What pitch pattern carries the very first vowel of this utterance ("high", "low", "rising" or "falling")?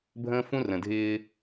high